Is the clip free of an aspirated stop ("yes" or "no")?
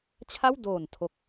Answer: no